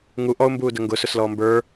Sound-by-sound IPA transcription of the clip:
ŋu ʔɔʊ̯mbuːdə ŋɡʊːsʊslɔː mbə˞

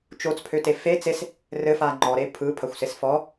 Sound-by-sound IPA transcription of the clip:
t͡ʃot͡spʰøte fe t͡ses | rɘfa ŋ͡ǃɔɾe pʰɯpʰɐxʷses fɔ

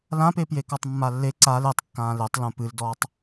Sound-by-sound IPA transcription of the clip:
lãpe pjekɔtˤmːalːe ǀal etˤkːãː letˤ lũpɨldɔːtˤ

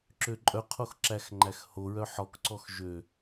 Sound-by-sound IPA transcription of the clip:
ǁøǃʼœqʰox ǁæxŋ͡ǃæxhoɹœ ħɔkǀɔx ʒø

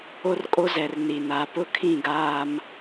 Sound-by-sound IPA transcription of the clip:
o˦rkʼo˦zɛ˨r ni˨na˨˦ pʊ˦kʰĩ˦˨ɡaː˦m

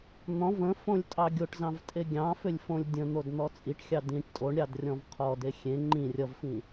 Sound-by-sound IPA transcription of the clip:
n̪ɔ̃v ə̃fõlʲ tʼɑɡʲoʈzɑ̃v tʼeɡʲɑ̃fʏlʲ fõlʲdʲə̃n̪od n̪ɔt͡sʼiʈxʲɑ dĩʈ tʼoɳɾʲɑd rʲɔ̃vqʰɔde xʲẽ ŋ͡ǃĩ rʲʌvfĩ

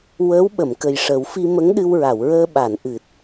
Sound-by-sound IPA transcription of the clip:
wəː˧˥w ɓə˨˩˨mkə˨˩jʂə˨˩˦w fi˧mə˧˥ŋɗɨ˧wɹa˨˩˨w ɹəː˧ɓa˨˩˨nʔɨ˨˩t̚

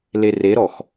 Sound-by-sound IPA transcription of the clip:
lereɾɔx

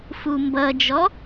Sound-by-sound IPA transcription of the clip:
fumbʌd͡ʒɔ

